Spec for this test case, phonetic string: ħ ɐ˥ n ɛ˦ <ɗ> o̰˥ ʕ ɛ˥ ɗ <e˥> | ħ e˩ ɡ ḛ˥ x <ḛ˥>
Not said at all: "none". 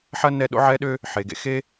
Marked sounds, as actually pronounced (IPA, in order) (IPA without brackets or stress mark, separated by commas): ɗ, ø˥, e˥